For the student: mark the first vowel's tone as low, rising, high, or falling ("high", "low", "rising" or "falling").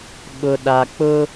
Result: low